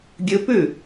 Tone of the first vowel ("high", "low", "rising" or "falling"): rising